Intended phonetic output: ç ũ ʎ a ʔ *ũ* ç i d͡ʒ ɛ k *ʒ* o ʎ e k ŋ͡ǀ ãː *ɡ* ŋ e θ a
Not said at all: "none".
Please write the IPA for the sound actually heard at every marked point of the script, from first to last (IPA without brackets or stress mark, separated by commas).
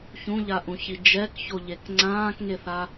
ũ, ç, k